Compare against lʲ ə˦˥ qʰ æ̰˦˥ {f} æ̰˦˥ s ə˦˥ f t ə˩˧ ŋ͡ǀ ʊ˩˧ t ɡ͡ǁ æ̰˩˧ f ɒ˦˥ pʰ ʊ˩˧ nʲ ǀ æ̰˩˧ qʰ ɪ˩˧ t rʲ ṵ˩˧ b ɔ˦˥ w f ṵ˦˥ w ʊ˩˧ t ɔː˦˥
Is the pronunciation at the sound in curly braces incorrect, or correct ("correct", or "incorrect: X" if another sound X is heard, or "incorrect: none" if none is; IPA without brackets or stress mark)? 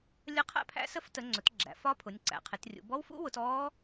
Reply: incorrect: pʰ